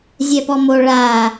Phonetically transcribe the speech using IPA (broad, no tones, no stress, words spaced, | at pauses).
zʲɛpɔmo ɭa